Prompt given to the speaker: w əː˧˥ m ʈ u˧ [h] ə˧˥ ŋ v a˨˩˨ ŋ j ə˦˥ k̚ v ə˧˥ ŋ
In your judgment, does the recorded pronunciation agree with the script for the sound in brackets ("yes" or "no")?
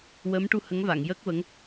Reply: yes